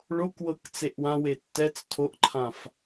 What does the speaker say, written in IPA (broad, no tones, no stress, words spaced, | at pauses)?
ɭokwɤk t͡seʔwãwe tːɛt͡s tʰoʔǃʰãf